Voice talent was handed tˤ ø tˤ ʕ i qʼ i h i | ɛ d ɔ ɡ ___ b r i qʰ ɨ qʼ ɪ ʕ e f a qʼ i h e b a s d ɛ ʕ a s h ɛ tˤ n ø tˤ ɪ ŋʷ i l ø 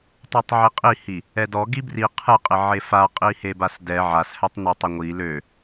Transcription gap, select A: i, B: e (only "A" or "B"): A